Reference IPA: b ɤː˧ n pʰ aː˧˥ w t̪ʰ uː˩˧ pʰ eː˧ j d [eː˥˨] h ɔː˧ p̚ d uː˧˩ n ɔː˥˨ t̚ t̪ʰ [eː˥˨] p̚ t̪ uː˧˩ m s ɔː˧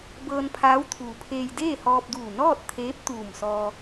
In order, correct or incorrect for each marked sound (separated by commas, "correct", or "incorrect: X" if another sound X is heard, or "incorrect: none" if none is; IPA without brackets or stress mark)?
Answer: correct, incorrect: eː˧˥